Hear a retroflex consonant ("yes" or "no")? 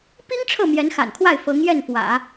yes